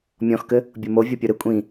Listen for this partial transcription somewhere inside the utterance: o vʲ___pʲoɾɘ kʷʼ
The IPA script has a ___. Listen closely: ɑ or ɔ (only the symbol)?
ɔ